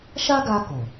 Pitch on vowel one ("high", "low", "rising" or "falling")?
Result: high